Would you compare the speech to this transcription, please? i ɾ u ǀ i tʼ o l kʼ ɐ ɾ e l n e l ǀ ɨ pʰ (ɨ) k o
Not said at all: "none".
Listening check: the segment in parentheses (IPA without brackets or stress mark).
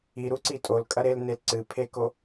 e